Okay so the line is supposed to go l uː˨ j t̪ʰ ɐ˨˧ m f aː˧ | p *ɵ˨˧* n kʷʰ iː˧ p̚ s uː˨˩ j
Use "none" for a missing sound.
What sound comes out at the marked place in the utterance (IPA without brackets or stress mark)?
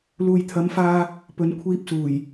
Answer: ɵ˨˧